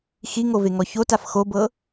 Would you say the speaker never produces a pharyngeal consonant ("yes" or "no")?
yes